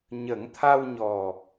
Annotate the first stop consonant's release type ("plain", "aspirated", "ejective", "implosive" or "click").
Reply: aspirated